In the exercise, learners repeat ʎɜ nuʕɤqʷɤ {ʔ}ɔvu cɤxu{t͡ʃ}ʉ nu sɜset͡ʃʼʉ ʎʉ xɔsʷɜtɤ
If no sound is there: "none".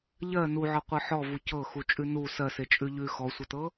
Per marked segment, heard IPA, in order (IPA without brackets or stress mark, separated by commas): ħ, t͡ʃʼ